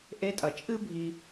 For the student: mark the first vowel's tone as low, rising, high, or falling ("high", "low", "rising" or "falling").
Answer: rising